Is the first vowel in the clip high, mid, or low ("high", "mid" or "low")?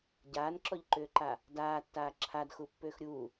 low